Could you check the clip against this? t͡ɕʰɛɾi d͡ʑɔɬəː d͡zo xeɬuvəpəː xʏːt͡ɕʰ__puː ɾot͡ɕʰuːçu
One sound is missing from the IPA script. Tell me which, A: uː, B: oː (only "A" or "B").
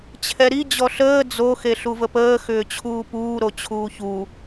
A